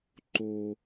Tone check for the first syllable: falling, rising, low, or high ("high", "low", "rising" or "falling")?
low